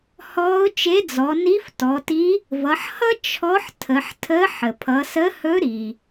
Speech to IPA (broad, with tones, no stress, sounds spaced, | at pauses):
h ɔː˧˥ ʊ̯ t͡ʃ e˧˥ d͡z ɔ˩˧ n i˧˥ f t ɔ˩˧ t i˧˥ | v ʌ˩˧ ħ h ʌ˥ t͡ʃʰ ɔ˧˥ ħ tʰ ə˩˧ ħ tʰ ə˧˥ ħ ə˩ pʰ ʌ˩˧ s ə˧˥ h ɵ˧˥ ɾ i˩